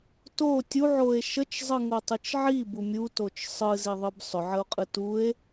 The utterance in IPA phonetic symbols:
to tʲuʕoe̯ ʃət͡ʃzˤɯŋotˤɯt͡ʃ ʕibu mʲutot͡ʃ sˤɯziðˤɯb sˤʏʕəo̯qʼɯ tue̯

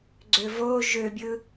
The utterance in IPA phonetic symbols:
ɡ͡ǀøvo ʒøbʲɯ

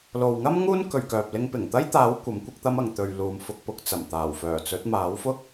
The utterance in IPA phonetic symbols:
lo˨wŋɐ˥m ŋuː˥nkɵ˨ɥkœː˨p̚ lɪ˧ŋpɪ˨˩ŋt̪ɐ˥jt̪aː˨˥w kʷɐ˨˥mkʷɪ˥k̚t̪ɐ˥m ɐ˨ŋt̪ɵ˨ɥ luː˨mfʊ˧k̚pʊ˨k̚ t͡sɐ˨˩mt̪aː˨˩wfœː˨˩t͡sɵ˨˥t̚ maː˨˥wfʊ˥k̚

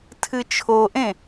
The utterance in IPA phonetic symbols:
tʰɨt͡ʃʰoʔẽ

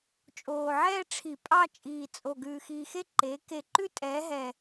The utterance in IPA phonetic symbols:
t͡ʃʼoː˨˩ʕɛː˥˧ ʈ͡ʂʰi˧˩˧pʼɑ˥˧ t͡ʃʼiː˨˩t͡sʼo˨˩ ɡʉː˨˩xiː˨˩xe˥˧ ǃeː˩˥ ke˧˩˧ǃʉ˥˧tʼɛː˩˥ ɦɛ˨˩

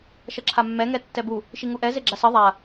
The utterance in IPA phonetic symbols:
ʃʌǁʰamːɛ ŋɛtːɛbu | ʃiŋuʔɛ zeɡ͡ǁasʌ ðˤa

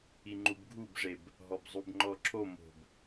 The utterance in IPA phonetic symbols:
iŋ͡ǃubɡʱubʐeb | ɦɔbzˤubŋ͡ǃɔǁʰo mo̤b

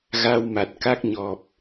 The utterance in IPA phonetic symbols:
ɣa˧wma˨˩t̚ka˦˥k̚ɲɔ˨˩p̚

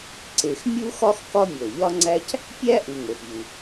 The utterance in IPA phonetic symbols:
ǀe˨x mʲu˥ xɒ˥x kɒ˦mʲo˩lʎɒ˦ŋ͡ǀæ˦c | pʲæ˥ ʔu˨ŋo˩xʎu˩

